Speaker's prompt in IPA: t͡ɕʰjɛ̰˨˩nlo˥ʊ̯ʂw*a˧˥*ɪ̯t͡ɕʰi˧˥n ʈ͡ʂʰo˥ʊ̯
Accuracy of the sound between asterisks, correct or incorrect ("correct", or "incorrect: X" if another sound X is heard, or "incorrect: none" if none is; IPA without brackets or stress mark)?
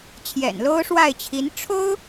incorrect: a˥˩